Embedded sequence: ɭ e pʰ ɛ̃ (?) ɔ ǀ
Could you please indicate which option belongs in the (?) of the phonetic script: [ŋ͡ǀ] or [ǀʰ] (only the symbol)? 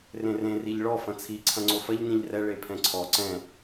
ǀʰ